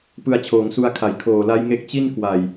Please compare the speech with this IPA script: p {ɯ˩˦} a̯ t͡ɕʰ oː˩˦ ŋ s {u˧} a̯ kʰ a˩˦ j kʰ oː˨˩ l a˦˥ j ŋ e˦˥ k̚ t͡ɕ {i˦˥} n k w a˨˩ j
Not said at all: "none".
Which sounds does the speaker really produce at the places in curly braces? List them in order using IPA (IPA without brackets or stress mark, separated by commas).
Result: ɯ˧, u˧, i˥˩